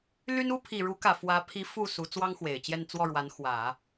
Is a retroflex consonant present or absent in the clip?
present